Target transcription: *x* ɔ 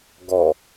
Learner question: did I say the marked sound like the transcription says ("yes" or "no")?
no